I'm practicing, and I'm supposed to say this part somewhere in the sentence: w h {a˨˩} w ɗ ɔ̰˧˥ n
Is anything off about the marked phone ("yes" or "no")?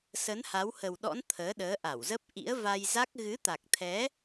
yes